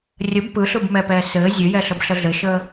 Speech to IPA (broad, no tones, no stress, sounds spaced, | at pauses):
rʲ ə b p ɯ ɬ ɯ b m ɛ p ɛː s ɘː zʲ ɘ j ɛ ɬ ə b ɬ ə ɮ ɘ ʃ əː